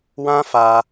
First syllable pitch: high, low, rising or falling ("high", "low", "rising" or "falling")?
high